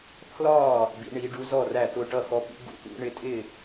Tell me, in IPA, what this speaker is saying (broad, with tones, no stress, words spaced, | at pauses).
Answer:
pʰlɒ˥˩ | bḭ˨˦ɳi˨˦ ɖu˨˦zɔ˥˩ ræ˥˩tʊ˥˩ ʈʌ˥˩ xɔ˨˦pḭ˨˦ ɡṵ˨˦tṵ˨˦ ɳɪ˨˦tʼɪ˥˩